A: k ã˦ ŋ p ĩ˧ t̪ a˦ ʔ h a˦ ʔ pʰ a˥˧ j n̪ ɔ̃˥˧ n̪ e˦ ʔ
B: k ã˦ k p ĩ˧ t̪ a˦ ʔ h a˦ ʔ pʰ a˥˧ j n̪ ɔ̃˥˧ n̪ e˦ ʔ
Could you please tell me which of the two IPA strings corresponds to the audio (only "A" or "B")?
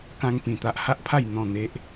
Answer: A